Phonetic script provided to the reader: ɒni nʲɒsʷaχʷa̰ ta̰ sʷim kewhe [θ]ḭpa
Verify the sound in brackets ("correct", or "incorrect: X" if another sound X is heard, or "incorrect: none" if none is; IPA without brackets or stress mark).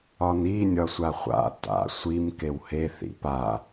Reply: correct